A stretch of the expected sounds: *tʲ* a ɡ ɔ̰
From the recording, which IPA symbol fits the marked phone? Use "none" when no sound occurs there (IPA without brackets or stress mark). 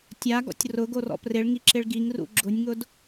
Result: tʲ